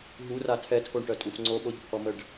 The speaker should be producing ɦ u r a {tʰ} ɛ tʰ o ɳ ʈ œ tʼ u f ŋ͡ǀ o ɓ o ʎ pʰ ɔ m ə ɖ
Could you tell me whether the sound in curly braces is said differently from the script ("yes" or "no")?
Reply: no